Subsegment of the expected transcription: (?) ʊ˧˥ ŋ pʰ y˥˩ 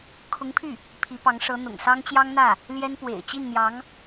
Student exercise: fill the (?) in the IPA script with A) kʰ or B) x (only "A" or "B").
A